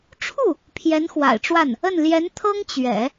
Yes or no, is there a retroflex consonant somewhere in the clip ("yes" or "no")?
yes